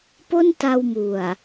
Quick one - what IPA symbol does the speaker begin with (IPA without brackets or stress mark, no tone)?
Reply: p